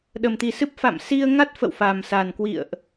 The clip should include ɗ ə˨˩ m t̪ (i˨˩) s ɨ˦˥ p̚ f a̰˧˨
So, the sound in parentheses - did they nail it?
yes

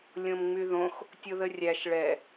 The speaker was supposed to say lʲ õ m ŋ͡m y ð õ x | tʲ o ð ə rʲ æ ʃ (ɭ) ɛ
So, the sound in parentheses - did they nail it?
yes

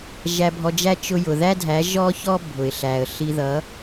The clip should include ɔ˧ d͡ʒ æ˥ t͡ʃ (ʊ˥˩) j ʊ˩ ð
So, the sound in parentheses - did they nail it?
no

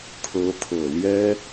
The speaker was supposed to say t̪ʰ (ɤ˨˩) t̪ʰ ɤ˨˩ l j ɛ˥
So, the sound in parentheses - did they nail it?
no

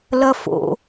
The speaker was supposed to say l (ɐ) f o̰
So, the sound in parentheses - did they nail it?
yes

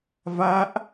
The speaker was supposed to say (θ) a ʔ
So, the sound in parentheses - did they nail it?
no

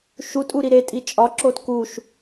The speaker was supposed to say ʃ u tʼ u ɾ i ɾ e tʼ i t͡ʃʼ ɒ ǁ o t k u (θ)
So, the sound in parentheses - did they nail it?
no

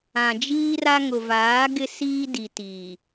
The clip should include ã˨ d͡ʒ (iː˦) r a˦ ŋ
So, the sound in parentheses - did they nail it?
yes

